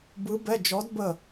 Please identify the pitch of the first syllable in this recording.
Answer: rising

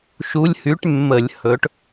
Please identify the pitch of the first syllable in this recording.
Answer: rising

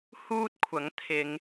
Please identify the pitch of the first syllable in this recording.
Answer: high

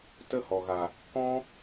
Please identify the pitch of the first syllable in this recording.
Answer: high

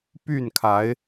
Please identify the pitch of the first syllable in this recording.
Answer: falling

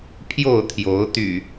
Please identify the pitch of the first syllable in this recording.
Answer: falling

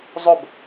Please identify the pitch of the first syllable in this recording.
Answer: falling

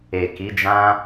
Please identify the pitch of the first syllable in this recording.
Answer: low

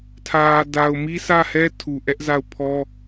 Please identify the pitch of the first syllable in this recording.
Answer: low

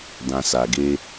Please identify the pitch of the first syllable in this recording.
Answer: low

